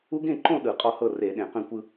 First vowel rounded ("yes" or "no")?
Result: yes